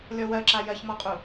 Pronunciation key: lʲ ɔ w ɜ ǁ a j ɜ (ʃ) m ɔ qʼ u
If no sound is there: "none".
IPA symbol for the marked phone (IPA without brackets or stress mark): ç